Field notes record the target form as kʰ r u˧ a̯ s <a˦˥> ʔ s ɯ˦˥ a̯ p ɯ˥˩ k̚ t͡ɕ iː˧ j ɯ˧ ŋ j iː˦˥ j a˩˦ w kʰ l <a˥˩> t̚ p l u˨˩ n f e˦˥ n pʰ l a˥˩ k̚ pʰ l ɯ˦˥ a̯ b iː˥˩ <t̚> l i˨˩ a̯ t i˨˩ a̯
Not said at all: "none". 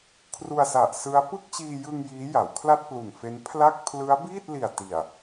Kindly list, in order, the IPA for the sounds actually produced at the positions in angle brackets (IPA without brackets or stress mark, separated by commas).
a˨˩, a˥˩, t̚